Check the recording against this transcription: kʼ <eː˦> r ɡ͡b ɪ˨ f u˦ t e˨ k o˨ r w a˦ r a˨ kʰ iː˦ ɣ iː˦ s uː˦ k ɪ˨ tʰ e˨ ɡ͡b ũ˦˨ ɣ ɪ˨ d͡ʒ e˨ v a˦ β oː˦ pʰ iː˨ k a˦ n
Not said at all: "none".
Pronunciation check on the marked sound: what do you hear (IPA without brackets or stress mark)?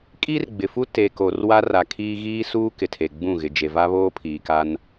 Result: iː˦